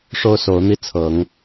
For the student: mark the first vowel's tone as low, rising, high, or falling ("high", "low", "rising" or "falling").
high